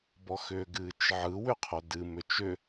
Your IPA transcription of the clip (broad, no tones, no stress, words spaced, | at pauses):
bɔxʏːɡɨːt͡ʃʕɯ wʏqʰodɨ mʏt͡ʃʏ